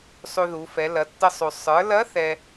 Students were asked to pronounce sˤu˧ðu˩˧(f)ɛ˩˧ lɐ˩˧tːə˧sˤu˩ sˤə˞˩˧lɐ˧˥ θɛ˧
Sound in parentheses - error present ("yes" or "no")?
no